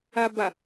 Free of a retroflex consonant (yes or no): yes